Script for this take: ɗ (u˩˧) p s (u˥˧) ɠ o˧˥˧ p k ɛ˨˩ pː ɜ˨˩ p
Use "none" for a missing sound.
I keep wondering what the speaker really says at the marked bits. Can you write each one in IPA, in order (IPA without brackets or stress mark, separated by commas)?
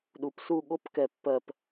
u˩˧, u˥˧